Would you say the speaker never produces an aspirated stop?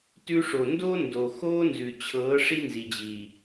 no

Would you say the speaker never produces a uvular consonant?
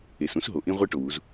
no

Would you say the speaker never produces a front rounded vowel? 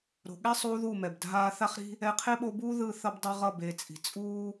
yes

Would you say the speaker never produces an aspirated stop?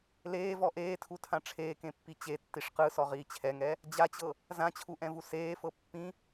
no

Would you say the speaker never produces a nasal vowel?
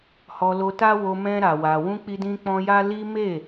no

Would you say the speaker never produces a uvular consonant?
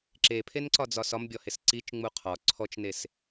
no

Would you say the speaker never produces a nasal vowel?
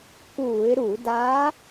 yes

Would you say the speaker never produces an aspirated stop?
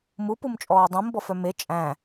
yes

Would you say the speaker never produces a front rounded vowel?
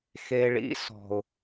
yes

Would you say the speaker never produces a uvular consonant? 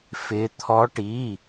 yes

